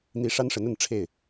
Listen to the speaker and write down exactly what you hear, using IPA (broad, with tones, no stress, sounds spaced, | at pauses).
n̪ i˧˥ ʂ a˥ n ʂ ə˧˥ n ə˥˧ n ʈ͡ʂʰ e˥˩ ɪ̯